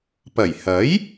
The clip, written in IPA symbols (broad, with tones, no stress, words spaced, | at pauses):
pɐ˨˩jhɐ˨˥j